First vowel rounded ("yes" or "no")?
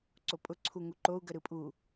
yes